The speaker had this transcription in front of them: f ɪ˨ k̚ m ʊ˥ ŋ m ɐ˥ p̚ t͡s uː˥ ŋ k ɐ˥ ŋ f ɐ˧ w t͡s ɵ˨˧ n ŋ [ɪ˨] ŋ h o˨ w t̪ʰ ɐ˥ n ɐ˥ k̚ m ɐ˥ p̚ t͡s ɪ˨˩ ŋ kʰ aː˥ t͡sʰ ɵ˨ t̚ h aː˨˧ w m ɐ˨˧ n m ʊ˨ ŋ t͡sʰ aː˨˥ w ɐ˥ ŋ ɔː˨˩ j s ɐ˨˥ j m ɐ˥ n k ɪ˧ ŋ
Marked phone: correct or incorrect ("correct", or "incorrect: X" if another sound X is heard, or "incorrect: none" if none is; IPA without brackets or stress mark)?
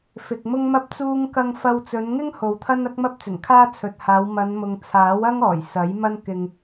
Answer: incorrect: ɪ˥